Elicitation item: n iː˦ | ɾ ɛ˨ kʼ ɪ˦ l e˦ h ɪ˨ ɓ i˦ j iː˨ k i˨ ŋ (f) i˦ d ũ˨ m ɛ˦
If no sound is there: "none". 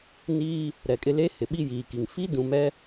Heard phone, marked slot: f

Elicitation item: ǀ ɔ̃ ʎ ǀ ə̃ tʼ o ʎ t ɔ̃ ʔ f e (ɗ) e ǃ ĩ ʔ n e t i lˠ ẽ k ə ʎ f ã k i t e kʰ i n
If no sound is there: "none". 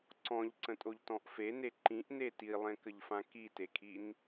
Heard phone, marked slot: n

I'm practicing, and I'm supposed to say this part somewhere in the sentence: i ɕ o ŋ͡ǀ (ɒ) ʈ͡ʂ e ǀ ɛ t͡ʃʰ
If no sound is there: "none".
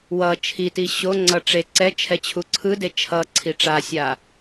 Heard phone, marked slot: ʌ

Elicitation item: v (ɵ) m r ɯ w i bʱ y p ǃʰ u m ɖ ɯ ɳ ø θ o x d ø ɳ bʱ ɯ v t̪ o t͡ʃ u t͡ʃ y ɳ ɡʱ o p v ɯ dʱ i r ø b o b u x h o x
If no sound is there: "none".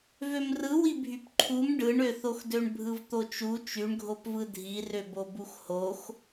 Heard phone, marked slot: ø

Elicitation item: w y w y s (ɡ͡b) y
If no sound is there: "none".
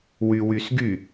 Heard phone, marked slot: ɡ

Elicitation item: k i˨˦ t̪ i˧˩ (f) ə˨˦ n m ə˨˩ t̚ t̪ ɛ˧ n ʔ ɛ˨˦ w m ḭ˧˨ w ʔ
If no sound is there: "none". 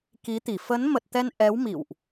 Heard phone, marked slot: f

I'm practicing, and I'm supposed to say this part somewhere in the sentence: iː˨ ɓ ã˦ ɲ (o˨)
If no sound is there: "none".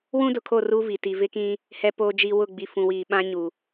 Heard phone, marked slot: u˨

